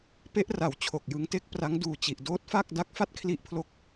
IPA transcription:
p e˦˥ ʔ r a˩˦ w t͡ɕʰ o˨˩ k̚ j ɯ˧ ŋ t e˥˩ k̚ p r a˦˥ ŋ d uː˨˩ t͡ɕ i˨˩ ʔ d oː˦˥ t̚ f a˥˩ k̚ d a˦˥ k̚ f a˥˩ t̚ kʰ l i˦˥ ʔ pʰ l o˦˥ k̚

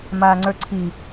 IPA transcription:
m aː ŋ͡ǀ ə˞ ǀʰ i

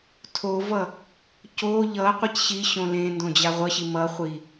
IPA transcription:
tʰ o v ʌ | c o ʎ ʌ qʷ e c ɕ i ɕ õ l ẽ n d õ d͡ʑ a ʁʷ ʌ ɕ i m ʌ χʷ i

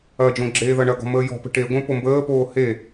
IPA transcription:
ɐ d͡ʒ õ ɡ͡ǁ eː ð ɐ ɳ ɐ ɡ ɔ̤ m əː j ɔ̤ p ə̤ ʈ e ɡʷ ẽ p o m b əː p oː h e

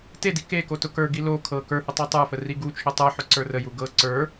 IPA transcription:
t e d i k e k o t ʊ k ə˞ ɡ i l o kʰ ɤ k ə˞ h ʊ tˤ e tˤ ə˞ f ə r i ɡ u t͡ʃʰ ʊ tˤ ə˞ ħ ʊ ǀ ə˞ r ə j u ɡ ɤ ǀ ə˞

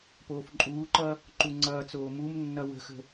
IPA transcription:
p oː f ǃʼ uː ǃ ʌ | ǃ u ŋ͡ǀ ʌː t͡s oː m u m nː ʌ w ə̤ x ə̤

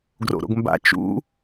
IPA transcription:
ɡ r o̰ ɾ o̰ ɡ m b a̰ t͡ʃ ṵ

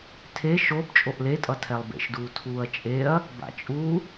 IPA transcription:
tʰ e ʃ o b t͡ʃʼ o ʔ l e tʼ ʌ tʰ ɛ lˠ b ḛ ʃ d uː tʰ uː ɐ̯ t͡ʃʼ e ɐ̯ | b a̰ t͡ʃʼ u

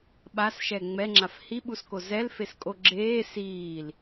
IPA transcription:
ɓ a s ʃ ɛ ŋ͡m ɛ ŋ͡ǁ a f h i ɓ u s k o z ɛ l f e s kʼ o ɡ͡ǁ eː s iː l

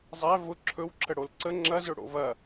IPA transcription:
zˤ æ v ʊ ǁʰ ɵ w ǁʰ ə ɽ o l ǀ ə ŋ͡ǁ ɐ z ɵ ɽ o̰ v ɐ

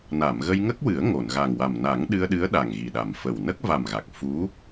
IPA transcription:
n a˨˩˨ m ɣ ə˧ j ŋ ə˦˥ k̚ w ɨ˨˩˦ ə̯ ŋ o˨˩˨ n ɣ a˨˩ ŋ w a˨˩ m n a˨˩˦ ŋ ɗ ɨ˧ ə̯ ɗ ɨ˧˥ ə̯ ɗ a˨˩ ŋ ɣ i˨˩ ɗ a˨˩ m f ə˨˩ w n ə˦˥ k̚ v a˨˩ m ɣ a˨˩ k̚ f u˧˥

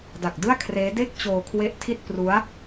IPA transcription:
d a˨˩ k̚ d ɯ˥˩ a̯ kʰ r eː˦˥ d e˥˩ k̚ t͡ɕ oː˧ kʰ w e˦˥ ʔ tʰ i˥˩ t̚ p r u˦˥ a̯

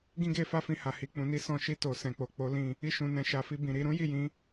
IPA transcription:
ɡ ĩ˦ ɡ e˧ f a˦ f ĩ˧ h a˨ h i˨ k͡p ũ˨ n i˨˦ s ɔ̃˧ ʃ i˧ t o˨ s ɛ̃˨ k͡p o˨ k͡p o˨˦ l ĩ˦˨ | i˧ ʃ ũ˨ n ɛ̃˨ ʃ a˨ f i˧ b ĩ˨ ɾ i˨˦ ɾ ũ˦ j i˦˨ j ĩ˨˦

